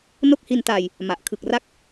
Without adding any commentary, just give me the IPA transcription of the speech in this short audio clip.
no˦˥k̚hi˧ntaː˧j | ma˨˩ʔ kʰɯ˨˩k̚ra˦˥k̚

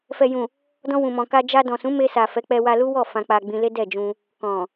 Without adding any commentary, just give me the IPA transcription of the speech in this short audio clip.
fɛ˨jũ˨ | dɔ̃˧wũ˨mɔ̃˨ka˧ d͡ʒa˧dɔ̃˨ sũ˨˦ me˧sa˨ fɛ˨˦k͡pɛ˧wa˧lu˦ wɔ˦˨ fã˧k͡pa˧ ɡ͡bĩ˧ le˦dɛ˦˨d͡ʒũ˧ | kɔ̃˨

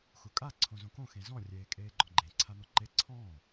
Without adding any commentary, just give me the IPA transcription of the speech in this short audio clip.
xukʼa ǀʰõzõkõ xẽzɔ̃ rʲeːkʼeːɡ͡ǃɔ̃ɡ͡ǃẽ ǀʰan̪ɔǃe ǀʰɔ̃ː

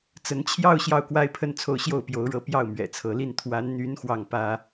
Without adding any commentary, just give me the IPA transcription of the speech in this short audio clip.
t͡sə˧˥nt͡ɕʰjɑ˥˧ʊ̯ ɕjɑ˥˩ʊ̯kwa˥ɪ̯pʰə˥nt͡sʰo˥˧ʊ̯ ɕjo˥˩ʊ̯pjo˧˥ʊ̯ɻɤ˧˥ pjɑ˥˩ʊ̯mɥɛ̰˨˩t͡sʰɤ˧˥li˥˩n t̪ʰwa˧˥nn̪y˧˥n xwɑ˥˩ŋpä˥

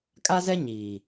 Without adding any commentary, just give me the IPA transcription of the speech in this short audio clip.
kʼa˦zɛ˦ ɲiː˨

